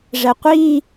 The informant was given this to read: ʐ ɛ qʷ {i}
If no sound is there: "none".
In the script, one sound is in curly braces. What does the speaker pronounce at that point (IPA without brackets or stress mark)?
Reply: i